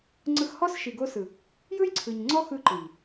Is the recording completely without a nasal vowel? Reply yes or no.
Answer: yes